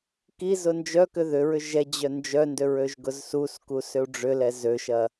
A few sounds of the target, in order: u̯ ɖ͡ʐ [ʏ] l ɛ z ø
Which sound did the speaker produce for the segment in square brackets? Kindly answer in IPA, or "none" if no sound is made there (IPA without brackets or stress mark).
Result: ʏ